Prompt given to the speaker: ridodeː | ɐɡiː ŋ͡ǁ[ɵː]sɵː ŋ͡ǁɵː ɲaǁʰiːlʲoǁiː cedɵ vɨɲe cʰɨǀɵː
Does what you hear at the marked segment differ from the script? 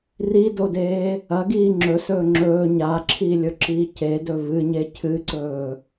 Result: yes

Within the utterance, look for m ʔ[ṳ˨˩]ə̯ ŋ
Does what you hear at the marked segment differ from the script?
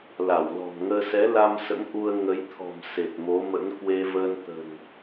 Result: yes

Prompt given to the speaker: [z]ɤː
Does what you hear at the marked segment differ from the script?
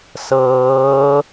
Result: yes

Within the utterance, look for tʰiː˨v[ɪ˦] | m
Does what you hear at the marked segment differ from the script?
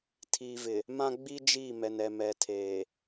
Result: yes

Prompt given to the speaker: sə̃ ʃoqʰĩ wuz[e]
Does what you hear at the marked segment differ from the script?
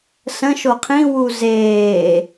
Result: yes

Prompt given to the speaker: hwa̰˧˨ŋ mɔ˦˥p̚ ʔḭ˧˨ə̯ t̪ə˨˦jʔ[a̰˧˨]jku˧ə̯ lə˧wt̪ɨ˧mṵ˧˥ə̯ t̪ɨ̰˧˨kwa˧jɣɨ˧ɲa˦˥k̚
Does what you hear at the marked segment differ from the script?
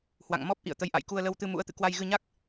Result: no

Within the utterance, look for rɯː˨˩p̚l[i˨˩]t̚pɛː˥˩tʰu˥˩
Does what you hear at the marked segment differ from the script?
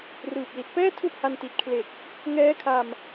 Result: no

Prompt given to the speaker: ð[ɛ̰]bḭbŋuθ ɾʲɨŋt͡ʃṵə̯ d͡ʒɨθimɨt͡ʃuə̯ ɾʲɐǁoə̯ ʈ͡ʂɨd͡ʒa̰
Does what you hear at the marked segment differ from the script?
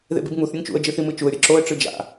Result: yes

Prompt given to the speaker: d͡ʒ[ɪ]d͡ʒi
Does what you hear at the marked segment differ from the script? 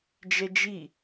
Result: yes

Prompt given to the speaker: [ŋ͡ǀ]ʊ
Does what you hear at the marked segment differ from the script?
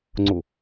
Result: no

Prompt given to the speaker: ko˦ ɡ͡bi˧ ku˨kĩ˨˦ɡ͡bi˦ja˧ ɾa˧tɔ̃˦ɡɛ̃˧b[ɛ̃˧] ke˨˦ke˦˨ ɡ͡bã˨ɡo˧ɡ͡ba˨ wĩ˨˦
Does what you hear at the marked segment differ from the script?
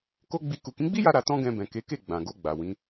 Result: yes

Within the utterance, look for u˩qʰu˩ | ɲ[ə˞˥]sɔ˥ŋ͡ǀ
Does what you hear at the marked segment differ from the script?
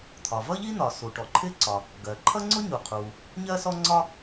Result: yes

